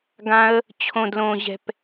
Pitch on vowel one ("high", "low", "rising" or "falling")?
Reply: high